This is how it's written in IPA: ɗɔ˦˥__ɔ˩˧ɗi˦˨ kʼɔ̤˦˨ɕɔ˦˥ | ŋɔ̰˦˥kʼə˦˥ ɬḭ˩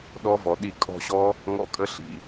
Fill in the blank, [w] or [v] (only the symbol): v